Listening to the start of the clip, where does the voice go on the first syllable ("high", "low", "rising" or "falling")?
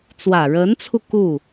low